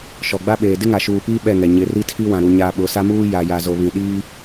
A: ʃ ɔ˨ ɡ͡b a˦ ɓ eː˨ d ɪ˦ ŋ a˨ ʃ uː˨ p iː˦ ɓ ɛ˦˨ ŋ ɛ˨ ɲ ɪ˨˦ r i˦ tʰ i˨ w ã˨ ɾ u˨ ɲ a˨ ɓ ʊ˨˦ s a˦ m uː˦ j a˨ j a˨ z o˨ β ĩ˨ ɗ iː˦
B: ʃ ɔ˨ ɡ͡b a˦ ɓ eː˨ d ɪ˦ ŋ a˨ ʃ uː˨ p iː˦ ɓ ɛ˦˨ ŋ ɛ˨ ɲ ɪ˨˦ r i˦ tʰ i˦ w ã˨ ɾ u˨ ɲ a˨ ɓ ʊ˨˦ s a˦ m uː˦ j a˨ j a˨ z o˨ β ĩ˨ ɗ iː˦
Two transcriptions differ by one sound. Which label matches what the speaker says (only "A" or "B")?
B